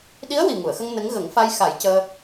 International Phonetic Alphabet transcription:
ɗ i˧˥ ə̯ w i˨˩ ŋ u˨˩˨ ə̯ x ə˧ ŋ n ə˧˥ ŋ ɣ ə˨˩˦ ŋ f a˧ j x a˨˩˦ j c əː˧

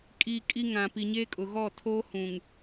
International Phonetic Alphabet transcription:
kʼ iː˨ kʼ i˦ ŋ ã˨ p i˨ ɲ eː˦ kʼ ʊ˨ ɣ ɔ˦˨ tʰ oː˦ h ũ˨ ŋ

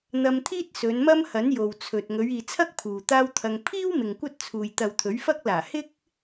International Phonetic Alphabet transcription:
n̪ ɐ˧ m t̪ʰ iː˥ t̚ s ɵ˨˧ n m ɐ˥ m h ɐ˨˥ n j o˨ w t͡sʰ ɵ˨ t̚ ŋ ɵ˨˧ ɥ iː˨ t͡sʰ ɐ˥ k̚ pʰ uː˨ t̪ aː˥ w t̪ʰ ɐ˧ ŋ pʰ iː˥ w m ɪ˨ ŋ kʷ ɐ˥ t̚ t͡sʰ uː˨ j t̪ ɐ˨ w t̪ʰ ɵ˨˥ ɥ f ɐ˥ k̚ l aː˨˩ h ɪ˥ k̚

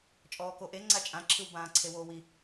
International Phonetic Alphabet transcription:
t͡ʃʼ ɔː k o ʔ e ŋ͡ǀ a t͡ʃʼ ã ǁʰ ɯ w b ãː ǀʰ e w oː w i

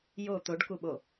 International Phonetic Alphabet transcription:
j o t̪ o ɖ k u ɓ o

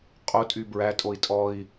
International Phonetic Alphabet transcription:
qʼ o tʼ y b ɹ æ tʼ o i̯ tʼ ɔ i̯

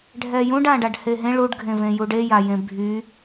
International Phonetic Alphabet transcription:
ɖʱ ɛ j ũ ɖ ã ɖ a ɖ h e ɦ ẽ ɭ u ɖ ɡʱ ẽ v ẽ j u ɖ e j a j ẽ bʱ y

